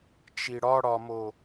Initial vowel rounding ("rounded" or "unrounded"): unrounded